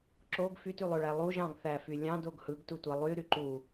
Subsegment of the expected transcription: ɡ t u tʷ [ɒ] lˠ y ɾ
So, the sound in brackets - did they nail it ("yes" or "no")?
no